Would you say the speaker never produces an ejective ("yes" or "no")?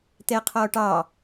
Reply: yes